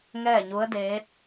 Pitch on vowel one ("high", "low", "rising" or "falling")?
falling